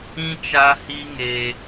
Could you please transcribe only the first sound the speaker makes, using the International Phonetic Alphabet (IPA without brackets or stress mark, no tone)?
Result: ĩ